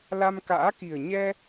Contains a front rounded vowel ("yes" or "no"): no